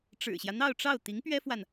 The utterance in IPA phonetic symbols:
ʈ͡ʂ ɻ̩˨˩ ɕ j ä˦ n̪ ɑ˥˧ ʊ̯ ʈ͡ʂ ɑ˥˩ ʊ̯ t̪ i˧˥ ŋ p ɥ ɛ˥ f w a˨ n

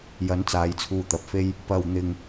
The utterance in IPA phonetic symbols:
j ɐ˨˥ n t͡s aː˨˧ j t͡sʰ uː˧ t̪ ɐ˨ p̚ f e˥ j | p ɐ˧ w n̪ ɪ˧ ŋ

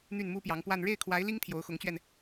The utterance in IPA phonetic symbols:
n̪ y˥˩ n m u˥ p j ɑ˧˥ ŋ p w a˥˧ n ɻ e˥˩ ɪ̯ kʰ w a˧˥ ɪ̯ l i˥ ŋ t̪ʰ j o˧˥ ʊ̯ x ʊ˧˥ ŋ t͡ɕ ɥ ɛ˧ n

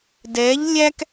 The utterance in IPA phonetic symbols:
d ɛː˧˥ ʎ lʲ æ˥ k

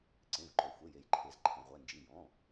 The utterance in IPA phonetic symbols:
ǀ ẽ˩˧˩ v ǃ ø˩ xʷ e˩˧˩ j e˩ j ǃʰ e˩ z ǃʰ ẽ˩ ʁʷ ɛ˩˧˩ n d͡ʒ i˩˧˩ j ɔ̃˩˧˩

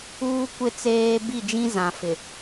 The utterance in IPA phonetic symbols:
uː˦ kʷ ɪ˦˨ t͡s eː˦ b i˦˨ d͡ʒ ĩ˦ z ã˨ f ɪ˨

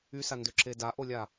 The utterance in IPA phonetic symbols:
y s a n d ø ǁ e d a ʔ o lʲ a

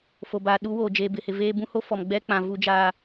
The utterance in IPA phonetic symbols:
f o˨ b aː˨ ɗ u˦ w oː˨ d͡ʒ eː˨ b ɪ˨ h ɪ˨ v eː˦ b ũ˦ h o˦ f ɔ˨ m ɡ͡b ɛ˦ k͡p ã˨ v u˦ d͡ʒ aː˦

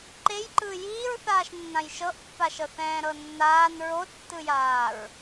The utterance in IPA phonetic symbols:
ǃ e j ǃ ɯ j iː ɹ θ aː ʃ nː ã j ʃ ɤ ʔ pː a ʃ ɤ θ ɛ̃ː ɾ ɤ nː aː n ɹ o tː ɯ j aː ɹ

